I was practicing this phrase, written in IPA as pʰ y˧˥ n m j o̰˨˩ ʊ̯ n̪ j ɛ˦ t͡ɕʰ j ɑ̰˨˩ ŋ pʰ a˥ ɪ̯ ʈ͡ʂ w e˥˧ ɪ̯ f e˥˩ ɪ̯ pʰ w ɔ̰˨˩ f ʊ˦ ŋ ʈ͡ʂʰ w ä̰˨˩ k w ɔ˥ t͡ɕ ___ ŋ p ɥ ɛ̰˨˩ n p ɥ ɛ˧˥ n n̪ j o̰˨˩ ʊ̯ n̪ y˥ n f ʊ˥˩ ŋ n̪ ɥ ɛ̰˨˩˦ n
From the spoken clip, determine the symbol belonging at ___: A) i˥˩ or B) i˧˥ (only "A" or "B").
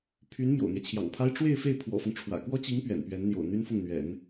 B